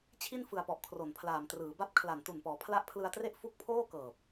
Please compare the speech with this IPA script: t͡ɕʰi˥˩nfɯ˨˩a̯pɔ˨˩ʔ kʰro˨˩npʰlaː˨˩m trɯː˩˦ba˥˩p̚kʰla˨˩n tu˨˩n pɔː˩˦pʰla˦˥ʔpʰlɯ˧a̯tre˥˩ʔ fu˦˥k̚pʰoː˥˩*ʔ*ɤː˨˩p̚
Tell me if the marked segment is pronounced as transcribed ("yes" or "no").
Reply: no